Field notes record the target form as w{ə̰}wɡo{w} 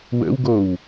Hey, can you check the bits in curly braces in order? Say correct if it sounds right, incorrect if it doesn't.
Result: correct, correct

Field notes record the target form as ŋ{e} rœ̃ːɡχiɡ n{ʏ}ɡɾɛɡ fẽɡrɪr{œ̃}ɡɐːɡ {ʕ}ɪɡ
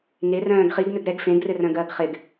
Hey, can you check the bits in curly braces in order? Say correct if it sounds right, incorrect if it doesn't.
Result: correct, correct, correct, incorrect

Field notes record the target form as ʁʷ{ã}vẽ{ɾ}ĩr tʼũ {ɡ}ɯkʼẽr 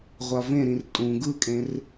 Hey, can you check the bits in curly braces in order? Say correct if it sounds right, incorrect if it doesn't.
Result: incorrect, correct, correct

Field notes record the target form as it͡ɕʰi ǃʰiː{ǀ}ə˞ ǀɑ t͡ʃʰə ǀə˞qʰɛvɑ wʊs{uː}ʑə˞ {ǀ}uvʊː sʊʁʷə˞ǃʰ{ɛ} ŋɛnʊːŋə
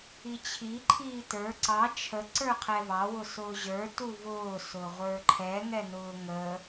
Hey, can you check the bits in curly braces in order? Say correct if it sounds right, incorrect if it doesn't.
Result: incorrect, incorrect, incorrect, correct

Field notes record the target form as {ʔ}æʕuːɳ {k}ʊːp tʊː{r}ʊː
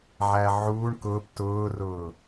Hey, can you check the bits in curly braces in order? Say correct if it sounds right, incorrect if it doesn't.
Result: incorrect, correct, correct

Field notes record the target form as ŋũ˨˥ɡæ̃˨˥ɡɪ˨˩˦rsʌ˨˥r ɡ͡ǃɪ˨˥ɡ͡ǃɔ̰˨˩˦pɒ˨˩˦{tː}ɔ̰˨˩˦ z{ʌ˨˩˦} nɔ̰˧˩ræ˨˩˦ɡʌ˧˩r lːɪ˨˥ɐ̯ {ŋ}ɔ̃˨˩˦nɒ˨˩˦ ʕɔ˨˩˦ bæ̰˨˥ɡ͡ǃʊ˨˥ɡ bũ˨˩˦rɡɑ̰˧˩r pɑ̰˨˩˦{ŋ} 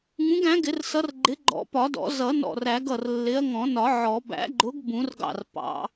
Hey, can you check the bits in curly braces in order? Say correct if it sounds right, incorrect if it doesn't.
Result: incorrect, correct, correct, incorrect

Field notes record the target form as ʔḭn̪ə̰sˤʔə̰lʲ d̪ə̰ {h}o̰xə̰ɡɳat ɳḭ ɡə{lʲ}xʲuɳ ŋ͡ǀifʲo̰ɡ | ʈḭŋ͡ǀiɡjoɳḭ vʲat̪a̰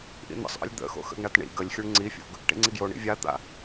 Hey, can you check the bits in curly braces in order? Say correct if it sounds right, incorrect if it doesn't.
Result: incorrect, correct

